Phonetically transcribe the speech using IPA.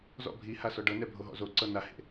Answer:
z ɔ̰ bʱ i h a s ɔ ɖ ɤ n ɛ bʱ o ɦ ɔ̰ z o ǀ ɤ n a h ḛ

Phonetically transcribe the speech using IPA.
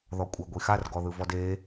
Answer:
ð ɔ kʷʼ a ɡʷ i x a r ɡ ɔ ð ɯ v ɔ d e

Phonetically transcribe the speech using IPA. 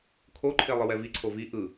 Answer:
kʰ o ǃʰ e lˠ ɯ w ɛ v i ǀʰ o v i ʔ ɯ

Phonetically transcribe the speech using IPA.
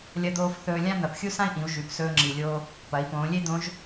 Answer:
lʲ ɐ˧ d̪ oː˧ f θ ɵː˧ lʲ ã˥ n̪ ɐ˩˧ p xʲ u˥ s ã˥ i̯ ʔ ĩ˩˧ u̯ ʒ ʉ˩˧ p s ɵː˧ ŋ͡ǁ i˩ lʲ oː˧ | p ɐ˩˧ i̯ p õː˩˧ lʲ e˥ d̪ õ˧˥ ʒ

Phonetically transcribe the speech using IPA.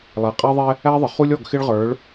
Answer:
lˠ æ˨ qʼ æ˦ ðˤ ɛ˦ | æ˦ ðˤ ə˨ χ u˦ lʲ ɔ˦˨ ɡ x ɪ˦ ɭ ʁ ə˞˨˦ ɭ

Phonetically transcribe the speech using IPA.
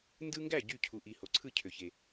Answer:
n d ɯ˦ ŋ ɡ æ˥˩ ɟ y˥˩ cʰ u˨ ʔ i˨ h o˨ ǀʰ ɯ˥˩ cʰ ø˨ ç e˨

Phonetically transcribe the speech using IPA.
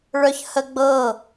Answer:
ɭ œ ç h ə ɡ͡b ɤ

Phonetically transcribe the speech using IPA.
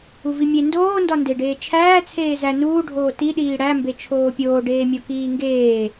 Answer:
u v i mʲ e n d oː n d ɒ n d e ɖ eː t͡ʃʰ æː t͡sʰ eː z æ n uː ɖʱ oː t i ɗ iː ɽ æ m b e t͡ʃʰ oː pʲ oː ɖ eː mʲ o k iː ŋ ɡ eː

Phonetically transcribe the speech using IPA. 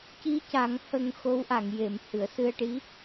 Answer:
c i˧˥ c a˨˩˦ ŋ h ə˧ ŋ x o˧˥ w ʔ a˨˩˨ ŋ j e˨˩˨ m h ɨ˨˩˨ ə̯ s ɨ˧ ə̯ ʈ i˧˥

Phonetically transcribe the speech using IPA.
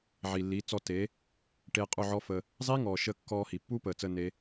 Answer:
ʕ i˨ lː iː˨˦ t͡s ɔ˧ t e˨˦ | ʈ e˧ qʼ u˦˨ ʕ ɔ˦ f əː˧ | zˤ i˦ ŋ ɔː˨ ʃ əː˧ kː ɔː˧ h i˨ pː uː˦ p əː˨ t͡s əː˧ n e˦

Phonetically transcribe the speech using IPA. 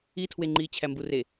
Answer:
i tʰ w e ŋ͡ǃ iː t͡ɕʰ æ m b u r e

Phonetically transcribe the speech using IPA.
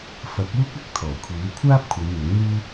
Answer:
f ɐ˨˥ k̚ uː˥ k̚ ɐ˧ k̚ t̪ʰ ɔː˨˩ kʷʰ iː˨˥ w kʷʰ aː˥ p̚ kʷʰ ɐ˨˧ j n̪ ʊ˨˥ ŋ n̪ uː˥

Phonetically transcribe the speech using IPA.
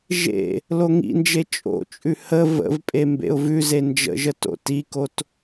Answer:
ʒ ḛ | l o ŋ ḭ n d͡ʒ e t͡ʃʼ o̰ t͡ʃʼ ʉ h ə v ə̰ v pʼ e m b ḛ ʊ̯ v ʉ z e n d͡ʒ ə̰ ʒ ə t o̰ t i k o t

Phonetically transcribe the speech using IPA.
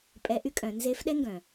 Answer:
pʼ ɛ˧˥ ʔ y˥ kʼ œ̃˩˧ n z e˧˥ f ɗ ɛ˥ ŋ ɡ œ̃˩

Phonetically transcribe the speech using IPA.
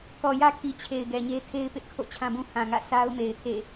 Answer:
k ɔ˨ j ä˦ kʰ i˨ t͡ɕʰ e˨ ɪ̯ ɡ ɛ˨ ɲ e˦ tʰ e˦ ɪ̯ p ɪ˦ ʔ kʰ o̰˦˨ t͡ɕʰ ã˦ b ũ˦ h ã˨ ŋ ä̰˦˨ s a˦ ʊ̯ m e˨ ɪ̯ tʰ ḛ˦˨

